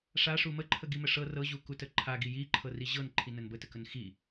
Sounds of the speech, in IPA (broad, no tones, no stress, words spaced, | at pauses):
ʂaʂu məǃʰəɡimə ʂɤ rɤʑukutə ǃʰaɡi jiǃʰɤri ʑɤnǃʰinən bətəkən xi